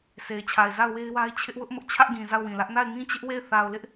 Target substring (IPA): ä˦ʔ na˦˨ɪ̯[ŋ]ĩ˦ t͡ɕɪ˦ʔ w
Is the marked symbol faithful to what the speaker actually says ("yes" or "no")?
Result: yes